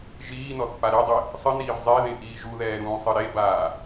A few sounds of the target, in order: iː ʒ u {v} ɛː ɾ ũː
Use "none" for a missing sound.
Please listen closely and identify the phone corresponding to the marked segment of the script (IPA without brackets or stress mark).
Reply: ð